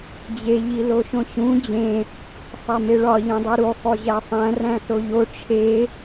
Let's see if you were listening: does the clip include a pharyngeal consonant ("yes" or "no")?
no